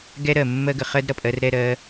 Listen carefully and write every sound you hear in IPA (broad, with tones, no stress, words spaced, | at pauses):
ɡɛ˦ɾɜ˨ mːɜ˧ɡə˨ χɜ˦dɾʌ˨pʼɜ˧r ɾɛ˦˨ɾɜ˧